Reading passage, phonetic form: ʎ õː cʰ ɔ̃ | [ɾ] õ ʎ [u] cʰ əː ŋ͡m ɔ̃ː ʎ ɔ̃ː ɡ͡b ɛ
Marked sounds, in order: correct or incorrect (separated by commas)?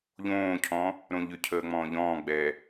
correct, incorrect